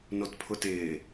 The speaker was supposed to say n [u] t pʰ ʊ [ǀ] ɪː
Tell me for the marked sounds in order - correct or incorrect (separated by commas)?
incorrect, incorrect